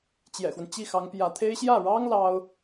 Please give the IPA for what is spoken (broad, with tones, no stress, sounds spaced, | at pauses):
t͡ɕ j ɛ̰˨˩ x w ə˦ n t͡ɕ i˥˩ x ɑ˧˥ ŋ p j ä˧˥ t̪ʰ e˥ ɪ̯ ɕ j ä˥˩ ɻ ɑ˥ ŋ l ɑ˥ ʊ̯